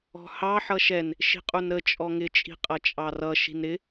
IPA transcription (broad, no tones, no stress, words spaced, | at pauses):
ɔ̤hɑ ħʌʃɛn | ʃi̤qʼunɾə t͡ʃʼɔŋɪ t͡ʃʼi̤qʼʌt͡ʃʼɑrʌ ʃi̤nɾɪ